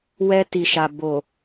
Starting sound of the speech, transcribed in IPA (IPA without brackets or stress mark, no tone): w